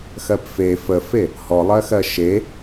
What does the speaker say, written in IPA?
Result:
x ɜ p f e f ə f e | h ɔ lˠ ɜ x ɜ ʃ e

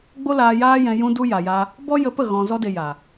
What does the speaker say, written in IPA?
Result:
ɡ͡b o˦ l aː˧ j aː˦ j ɛ̃˧ j ũ˧ d u˧ j a˨ j a˧ | b ɔ˦ j ə˧ p ə˦˨ ɣ ɔ̃˨ z ɔ˧ d e˨ j a˨

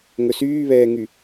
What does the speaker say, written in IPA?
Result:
ŋ ɵ s yː β ɛː ŋ y

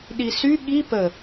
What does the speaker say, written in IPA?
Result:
ɗ i s y ɠ i p ə

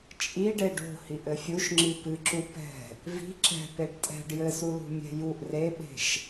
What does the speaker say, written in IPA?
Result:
t͡ʃʼ i ɖ e ɖ o̤ h i ʔ ɘ fʲ u ʃ ŋ͡ǁ i p ɨ ǁ u p ɛ̤ | v i̤ ǁ ɛ̤ p e ɖ tʼ ɛ̤ ɖ j ɘ s u l ṳ mʲ ɛ̤ j u ʔ r e ɓ e̤ ʃ

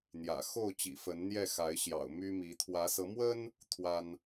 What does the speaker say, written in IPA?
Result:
n̪ j ä̰˨˩ x o˥˨ ʊ̯ t͡ɕ ḭ˨˩ f ə˨˦ n n̪ j ɛ˥˨ x a˨˦ ɪ̯ ɕ j ɑ̰˨˩ ʊ̯ m y˦ m i˨˦ t̪ʰ w ä˨˦ s ɤ˨˦ m w ə˦ n | t̪ʰ w a˦ n

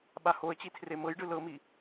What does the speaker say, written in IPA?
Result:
ɓ a h o ə̯ t͡ɕ i tʰ r e m ɤ j ɖ ɯ l ɤ m i

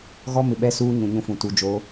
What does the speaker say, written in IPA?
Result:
ɣ ɔ˦ m ɪ˨ ɓ ɛ˦ s uː˦ ɲ ũ˨ ɲ ũ˦ f ũ˨ t u˨ d͡ʒ o˨˦

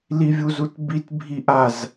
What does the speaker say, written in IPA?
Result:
l i vʲ u z u t b i t bʱ i ʔ a z

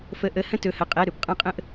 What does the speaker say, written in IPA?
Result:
f ə˧˥˧ ʔ ə˧˥˧ h ə̃˥ t ɵ˧˥˧ h ə˧˥˧ qʼ ɛ˧˥˧ ɾ ɵ˩˧ p qʼ ã˥ qʼ ə̃˥ ʔ

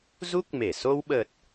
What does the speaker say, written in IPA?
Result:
z u˦˥ k̚ m e˧˩ s o˧ w ɓ ə˨˩ t̚

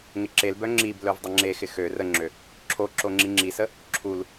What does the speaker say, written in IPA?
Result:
ŋ ɪ ǁ e l b œ ŋ͡ǁ i b l œ v dˤ ə ŋ͡ǁ e x ɪ x ø r ə ŋ͡ǁ ø | ǁʰ o ǁ o ŋ͡ǁ i ŋ͡ǁ i s ə | ǁʰ u l

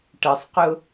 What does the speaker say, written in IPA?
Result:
ʈ ə sˤ q ʊ

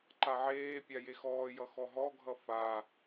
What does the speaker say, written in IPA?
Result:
ǃ a ʕ eː pʲ a j e x ɔː j ʌ x ɔ ɦ ɔ ɡʱ ʌ f a

